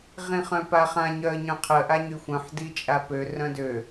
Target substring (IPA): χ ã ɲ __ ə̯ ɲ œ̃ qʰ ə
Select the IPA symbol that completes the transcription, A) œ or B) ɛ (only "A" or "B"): A